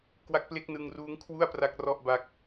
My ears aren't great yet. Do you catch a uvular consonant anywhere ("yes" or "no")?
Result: no